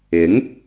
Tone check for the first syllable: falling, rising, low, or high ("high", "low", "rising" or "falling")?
rising